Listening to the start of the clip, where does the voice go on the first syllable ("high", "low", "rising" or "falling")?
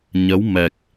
rising